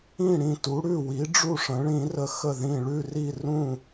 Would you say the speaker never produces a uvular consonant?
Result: yes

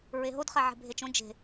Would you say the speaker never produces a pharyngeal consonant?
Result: no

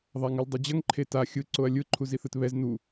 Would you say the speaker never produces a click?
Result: no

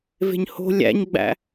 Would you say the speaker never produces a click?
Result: yes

